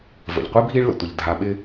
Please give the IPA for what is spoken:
v ə̰˩ ʎ qʷ i˥ bʱ i˦ ɭ l ə̰˩ tʷ ə˩ ʎ dʱ a˨ ɓ ɪ˦

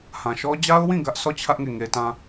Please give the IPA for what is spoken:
h ã˨ ʃ ɔ˦ d͡ʑ a˦ ʊ̯ w ĩ˦˨ ɡ ä˦ ʔ s ɔ˦˨ t͡ɕʰ ä˦ ʔ ŋ e˦˨ ŋ e˦ t ã˦

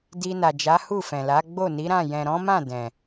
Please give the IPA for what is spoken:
d i˧ n a˨ d͡ʒ a˨˦ h u˦˨ f ɛ̃˨ l a˨˦ ɡ͡b o˦˨ n i˨˦ ɾ ã˦˨ j ɛ̃˨ ɾ ɔ̃˨˦ m ã˦˨ d ɛ̃˨

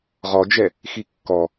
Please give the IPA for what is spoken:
ʁ ɔ d͡ʒ ɛ | x i kː ɔ

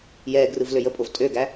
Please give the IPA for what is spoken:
j ɛː ɡ r ɯ v l ø j ə pʼ o v tʼ ø ɡ æ

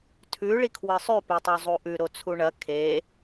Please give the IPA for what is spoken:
tʰ ʉ ɭ i kʰ w ɨ sˤ ʉ p e tˤ o zˤ u ʔ ʉ ɾ o t͡sʰ u ɳ ɐ kʰ e

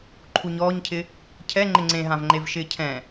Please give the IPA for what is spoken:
ǃʰ u ɲ ɔː ɲ cʰ ɪ | cʰ ɛ ŋ͡ǃ ɪ ŋ͡ǀ ẽ ɦ ã v ŋ͡ǃ e v ʃ ɪː cʰ ɛ̃

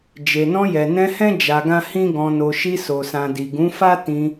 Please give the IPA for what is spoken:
d͡ʒ e˨ n ɔ̃˧ j ɛ˨ n ɛ̃˧ h ɛ̃˦ d͡ʒ a˧ ɡ ã˦ h ĩ˦ ɡ ɔ̃˧ n o˧ ʃ i˧ s o˨ s ã˨ d i˨ ɡ ũ˨˦ f a˦ t ĩ˧

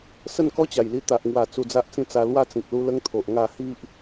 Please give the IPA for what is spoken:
s ə˥˧ n k ɔ˦ t͡ɕ a˨˩ j l i˧ t̪ a˨ ʔ ŋ w a˨˩ t͡s u˧ d͡z a˦ ʔ t͡s ĩ˥˧ t͡s a˧ l w a˥˧ t͡s ĩ˨ k̚ l u˦ l ə˦ ŋ t̪ʰ o˨ ʔ ŋ a˥˧ h i˦ ʔ

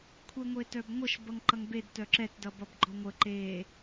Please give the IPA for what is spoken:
kʷʰ e ŋʷ e t œ b ŋʷ ʌ ʃ b ʌ ŋ ǃ ʌ ŋ b e d t œ ǁ ɛ t d ʌ b ʌ b ɡ͡ǃ ɔ ŋʷ ə ǃ e

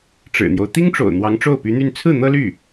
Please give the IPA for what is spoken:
ʈ͡ʂ ɻ̩˨˩ n̪ j o˦ ʊ̯ t̪ i˥ ŋ ʈ͡ʂ o̰˨˩ ʊ̯ n̪ w ɑ˧˥ ŋ ʈ͡ʂ o˥˩ ʊ̯ p y˧˥ n̪ y˥˧ n t͡sʰ ɹ̩˥˩ n̪ ɤ˥ l y˥˩

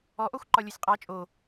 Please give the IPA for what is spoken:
ɔ ʔ ɔ xʷ ǃ ɒ lʲ o sʲ qʼ ɑ t͡ʃʼ o

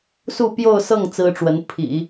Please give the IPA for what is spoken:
s u˥˧ p j o˥˧ ʊ̯ s ɤ˥˩ ŋ t͡s ɹ̩˥ ʈ͡ʂ w ə˧˥ n pʰ ḭ˨˩˦

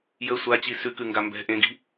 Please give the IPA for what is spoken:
j ə sʷ a t͡ɕ i s ʉ k ʉ ŋ ɡ a m b ɛ̤ ʔ ẽ ɡ i̤

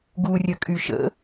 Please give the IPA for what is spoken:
ɡ u rʲ ə kʼ y ʃ ə̰

